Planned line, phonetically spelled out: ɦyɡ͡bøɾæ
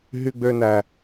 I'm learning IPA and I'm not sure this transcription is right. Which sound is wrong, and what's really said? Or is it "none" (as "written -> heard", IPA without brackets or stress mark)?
ɾ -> n